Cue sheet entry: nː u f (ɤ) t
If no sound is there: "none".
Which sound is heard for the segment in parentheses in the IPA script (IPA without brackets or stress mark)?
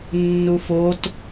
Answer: o